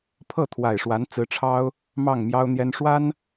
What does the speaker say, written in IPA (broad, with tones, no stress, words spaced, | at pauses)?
pʰɤ˥˩ t̪ʰwa˨˩ɪ̯ʂwa˧˥nt͡sɹ̩˧˥ʈ͡ʂʰɑ˥ʊ̯ | mɑ˥˩ŋmjɑ˥ʊ̯ n̪jɛ˥n ʂwa˥n